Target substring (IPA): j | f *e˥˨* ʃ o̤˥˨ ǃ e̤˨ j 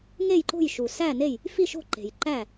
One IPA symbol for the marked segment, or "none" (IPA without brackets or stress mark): i˥˨